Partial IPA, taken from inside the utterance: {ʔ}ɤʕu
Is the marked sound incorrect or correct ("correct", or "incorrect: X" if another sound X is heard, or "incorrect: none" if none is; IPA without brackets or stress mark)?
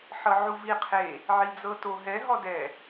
incorrect: ħ